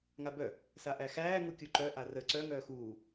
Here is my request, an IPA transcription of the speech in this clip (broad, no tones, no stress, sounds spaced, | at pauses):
ŋ a b œ | s a ʔ æ x æː ŋ u kʲ u ǃ œ ʔ a r ə ǀ œ ŋ œː x uː